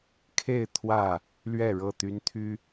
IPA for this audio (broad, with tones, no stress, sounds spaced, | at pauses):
kʰ e˥˨ ɪ̯ t̪ʰ w ä˥˨ | l ɥ ɛ˥˨ ɻ ɤ˥˨ t̪ y˦ n t̪ʰ y˦